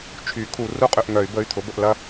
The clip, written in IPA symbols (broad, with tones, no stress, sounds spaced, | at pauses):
t͡ʃʰ y˨˩˦ kʰ u˨˩˦ r u˥˨ qʼ ʏ˥˨ ʔ ŋ œ˨˩˦ y̯ b ə˩˧˩ y̯ t̪ʰ ʊ˩˥ b ə˥˨ ʔ l ɐ˥˨